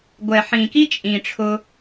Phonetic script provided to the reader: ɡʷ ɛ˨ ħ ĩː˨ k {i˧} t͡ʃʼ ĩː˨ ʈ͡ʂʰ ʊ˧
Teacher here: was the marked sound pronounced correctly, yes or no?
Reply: no